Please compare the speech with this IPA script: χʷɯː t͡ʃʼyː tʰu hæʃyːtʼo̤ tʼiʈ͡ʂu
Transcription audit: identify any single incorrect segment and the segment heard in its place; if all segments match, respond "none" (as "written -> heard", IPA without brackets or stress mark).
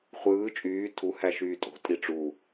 none